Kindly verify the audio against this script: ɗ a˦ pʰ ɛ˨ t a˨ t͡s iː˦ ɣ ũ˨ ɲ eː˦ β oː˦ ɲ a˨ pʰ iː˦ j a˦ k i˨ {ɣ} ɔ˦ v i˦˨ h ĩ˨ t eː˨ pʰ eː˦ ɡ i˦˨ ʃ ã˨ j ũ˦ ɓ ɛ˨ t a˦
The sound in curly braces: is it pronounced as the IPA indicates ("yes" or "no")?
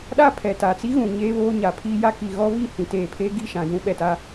yes